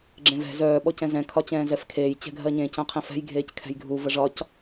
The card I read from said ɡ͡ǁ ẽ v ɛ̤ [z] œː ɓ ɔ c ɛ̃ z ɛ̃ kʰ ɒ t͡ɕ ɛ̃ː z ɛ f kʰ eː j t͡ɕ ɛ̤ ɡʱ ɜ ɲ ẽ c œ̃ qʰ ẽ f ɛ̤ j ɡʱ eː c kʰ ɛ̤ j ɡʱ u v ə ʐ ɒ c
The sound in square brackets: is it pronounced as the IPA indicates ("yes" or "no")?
yes